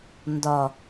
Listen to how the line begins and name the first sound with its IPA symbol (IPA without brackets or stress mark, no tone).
n